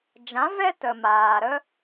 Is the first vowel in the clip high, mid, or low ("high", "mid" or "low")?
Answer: low